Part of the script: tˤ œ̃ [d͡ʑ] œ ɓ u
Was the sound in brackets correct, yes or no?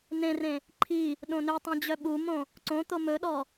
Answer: yes